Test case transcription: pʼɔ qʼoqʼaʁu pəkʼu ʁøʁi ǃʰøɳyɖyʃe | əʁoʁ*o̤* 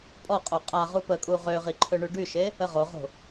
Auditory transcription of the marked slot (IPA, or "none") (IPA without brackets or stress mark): o̤